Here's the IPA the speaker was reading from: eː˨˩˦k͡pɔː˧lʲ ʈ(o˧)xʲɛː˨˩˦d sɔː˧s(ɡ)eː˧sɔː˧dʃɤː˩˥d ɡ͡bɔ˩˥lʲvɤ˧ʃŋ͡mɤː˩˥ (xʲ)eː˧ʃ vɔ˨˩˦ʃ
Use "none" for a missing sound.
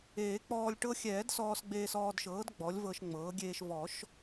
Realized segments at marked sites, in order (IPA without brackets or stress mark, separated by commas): ɤ˧, ɡ͡b, ɡʲ